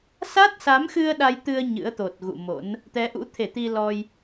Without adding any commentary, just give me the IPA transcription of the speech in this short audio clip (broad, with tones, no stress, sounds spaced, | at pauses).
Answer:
s a˦˥ t̚ s a˨˦ m x ɨ˧ ə̯ ɗ a˧ j t̪ ɨ˧ ə̯ ɲ ɨ̰˧˥ ə̯ t̪ o˨˩ t̚ ɣ ṵ˧˨ m o̰˧˥ n | t̪ ɛ˨˦ ʔ ṵ˧˥ t̪ʰ e˧˩ t̪ i˧ l ɔ˧ j